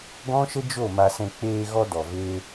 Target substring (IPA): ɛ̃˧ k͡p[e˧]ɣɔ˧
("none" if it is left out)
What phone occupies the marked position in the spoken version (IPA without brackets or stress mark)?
eː˧